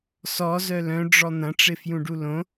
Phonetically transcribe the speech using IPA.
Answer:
sɔzœ lœ̃ɖ͡ʐɔ n̪ɐ̃ʈ͡ʂɪfjũɖu lõ

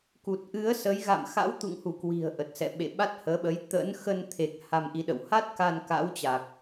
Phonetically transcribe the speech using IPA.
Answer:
ku˨˩t̚ʔɨ˨˦ə̯ sə˨˦j ɣa̰˧˨mxa̰˧˥wt̪ṵ˧˨ŋhu˧˩ kwi̤˨˩ə̯ ʔə˨˩t̚sɛ̰˧˨ɓḛ˧˨ ɓa˦˥t̚həː˨˦ɓə˨˦j t̪ə̰˧˥n xə˧nt̪ʰe˨˩k̚ ha˧mʔi˨˦ɗə̰˧˨w ha˦˥t̚ka˧n ka̰˧˥wt͡ɕa˨˩k̚

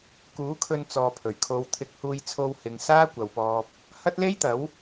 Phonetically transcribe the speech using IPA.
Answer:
kuː˨˥kʰɵ˧n t͡sɔː˨pʰɵ˨˩ɥkʰo˨˧wt̪ʰɪ˧k̚ huː˧jt͡sʰo˧whɪ˨ŋ saː˥kʷɐ˨wpɔː˧p̚ | hɐ˥t̚le˥jt̪ɐ˨˥w

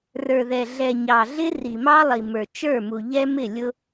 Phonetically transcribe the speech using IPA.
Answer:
rə˞˨ðɛ˨ɮɛ˨ɲɑ˨ ɮɪ˦ri˨mɑ˦lˠi˨ mə˞˨t͡ʃə˞˦˨mu˨ ʎɛ˦mɪ˦˨ lʲʊ˦

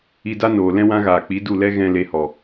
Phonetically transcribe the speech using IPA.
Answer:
i˧da˦noː˨lɛ̃˦ wã˦ɣaː˨k͡pi˨˦du˦˨ lɛ˦ɣɛ̃˧ le˧hɔ˨

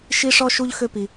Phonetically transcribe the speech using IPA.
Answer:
ʃi˦ʂɔ˦ ʃu˦ʎ xø˦pi˧

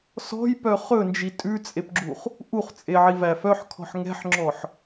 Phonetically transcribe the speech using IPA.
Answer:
sɔ̤jpœ χɵnd͡ʒi tʼʉt͡sʼepɡ͡ǁuχ | ʔuχt͡sʼeʕivæ fœħkʰɔ̤ħ ŋɛ̤ħŋ͡ǁɔħ

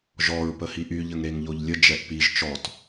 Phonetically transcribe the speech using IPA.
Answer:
ʒɔɹ pəhiʔy ʎəŋɾeŋʎoʎlʲə d͡ʒɛʔpiʒ t͡ʃɔt

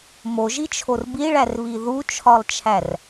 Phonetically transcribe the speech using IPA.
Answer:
moʒit͡ʃʰor biɭærβi ðut͡ʃʰɒlˠt͡ʃʰær

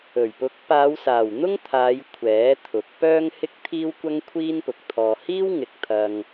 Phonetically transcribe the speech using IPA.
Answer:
ɵ˨˩ɥpʊ˨˥k̚ paː˨˧wsaː˨˩w n̪ʊ˥ŋt̪ʰaː˨˧j kʷʰɛː˨˥t̪ʰʊ˨˥k̚ pœː˥ŋ hɪ˥k̚t̪ʰiː˥wkʷɐ˥ŋ kʷʰiː˥npʊ˨k̚t̪ʰɔː˧ hiː˥wŋɪ˨˥k̚ t̪ʰɐ˧ŋ

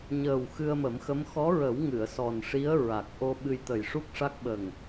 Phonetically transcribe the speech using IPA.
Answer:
ɲəː˨˩w xɨ˧ə̯mə˨˩˦mxə˧˥m xɔ˧˥ɹə˨˩˦w ŋɨ˨˩˨ə̯sɔ˨˩nʂi˧˥ə̯ ɹa˨˩k̚ʔo˧ ɓɨ˧jt̪ə˨˩jʂu˦˥k̚ʂa˦˥k̚ ɓə˨˩ŋ

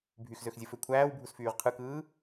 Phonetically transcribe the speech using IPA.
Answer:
bʱyxzøxzʲɯfø kʷʰæːwbʱusfyːʁ qʰɯkɯː

